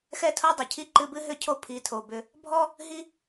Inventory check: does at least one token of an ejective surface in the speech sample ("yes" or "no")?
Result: no